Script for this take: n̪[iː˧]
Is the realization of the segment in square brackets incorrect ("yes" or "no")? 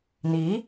yes